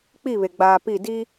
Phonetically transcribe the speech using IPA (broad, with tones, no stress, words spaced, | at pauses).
k͡pi˦˨βe˨ɡ͡baː˨ pi˦˨di˦